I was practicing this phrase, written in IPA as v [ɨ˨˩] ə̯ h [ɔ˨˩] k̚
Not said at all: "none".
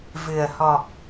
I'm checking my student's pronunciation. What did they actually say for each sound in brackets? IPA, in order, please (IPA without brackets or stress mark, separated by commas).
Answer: ɨ˨˩, ɔ˨˩